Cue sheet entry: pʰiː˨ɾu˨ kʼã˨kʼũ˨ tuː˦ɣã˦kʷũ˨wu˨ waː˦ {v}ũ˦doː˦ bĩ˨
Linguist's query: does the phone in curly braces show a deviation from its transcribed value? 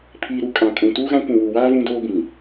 no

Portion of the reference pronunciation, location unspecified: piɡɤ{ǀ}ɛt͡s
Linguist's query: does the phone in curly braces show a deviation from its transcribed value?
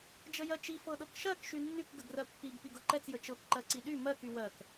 yes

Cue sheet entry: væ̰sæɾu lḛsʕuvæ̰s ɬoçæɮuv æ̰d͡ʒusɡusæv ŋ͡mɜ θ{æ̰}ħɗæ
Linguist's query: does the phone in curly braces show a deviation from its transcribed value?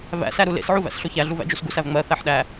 yes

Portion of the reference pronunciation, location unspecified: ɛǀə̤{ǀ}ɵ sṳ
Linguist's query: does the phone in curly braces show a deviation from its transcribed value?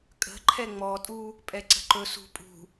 yes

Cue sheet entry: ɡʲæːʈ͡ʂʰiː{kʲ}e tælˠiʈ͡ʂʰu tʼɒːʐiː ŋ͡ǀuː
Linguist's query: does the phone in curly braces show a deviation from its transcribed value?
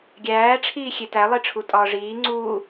yes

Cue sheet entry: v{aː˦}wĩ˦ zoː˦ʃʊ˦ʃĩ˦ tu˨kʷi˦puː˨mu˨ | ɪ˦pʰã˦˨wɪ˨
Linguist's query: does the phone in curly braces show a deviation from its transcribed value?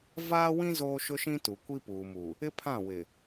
no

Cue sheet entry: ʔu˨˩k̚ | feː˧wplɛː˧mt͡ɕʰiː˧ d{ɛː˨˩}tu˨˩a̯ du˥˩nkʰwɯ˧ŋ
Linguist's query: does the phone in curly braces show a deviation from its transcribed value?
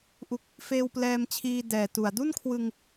no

